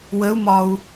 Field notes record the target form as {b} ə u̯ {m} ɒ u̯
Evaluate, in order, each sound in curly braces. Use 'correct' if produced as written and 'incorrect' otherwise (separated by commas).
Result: incorrect, correct